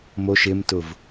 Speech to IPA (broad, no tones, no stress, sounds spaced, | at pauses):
m o ʃ ɪ m t ʊ v